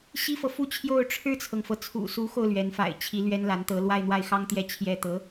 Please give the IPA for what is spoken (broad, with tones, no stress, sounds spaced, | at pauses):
ɕ i˥ f ɤ˨ f u˥˧ t͡ɕʰ j o˥˧ ʊ̯ ʈ͡ʂʰ ɻ̩˥˩ t͡sʰ ɤ˩ ŋ f ɤ˩ t͡sʰ ṵ˨˩ s u˧˥ x o˧ ʊ̯ l ɥ ɛ˧˥ n f a̰˨˩ ɪ̯ t͡ɕʰ i˧˥ l ɥ ɛ˥ n l a˧˥ n t̪ ɤ˧˥ l w a˥˧ ɪ̯ n̪ w a˥˩ ɪ̯ x ɑ˥ ŋ t̪ j ɛ˥˩ t͡ɕʰ j ɛ˥ t̪ ɤ˧˥